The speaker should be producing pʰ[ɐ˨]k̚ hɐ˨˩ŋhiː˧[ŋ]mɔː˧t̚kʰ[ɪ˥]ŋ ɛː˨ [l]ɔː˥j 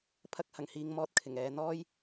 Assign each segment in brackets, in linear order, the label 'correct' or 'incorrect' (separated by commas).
incorrect, correct, incorrect, incorrect